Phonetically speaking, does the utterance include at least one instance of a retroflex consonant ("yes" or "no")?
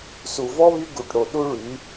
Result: yes